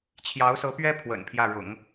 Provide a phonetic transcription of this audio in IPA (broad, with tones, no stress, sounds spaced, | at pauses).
t͡ɕʰ j ɑ˧˥ ʊ̯ s ɤ˧˥ p ɥ ɛ˥ pʰ w ə̰˨˩ n pʰ j ä˥˩ ɻ ʊ̰˨˩˦ ŋ